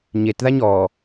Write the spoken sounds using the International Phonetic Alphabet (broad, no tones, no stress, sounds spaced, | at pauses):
ɲ e t ð a ɲ ɔ